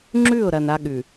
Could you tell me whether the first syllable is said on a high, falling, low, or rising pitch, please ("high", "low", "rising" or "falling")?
falling